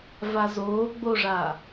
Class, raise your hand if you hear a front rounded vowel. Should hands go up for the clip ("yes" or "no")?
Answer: no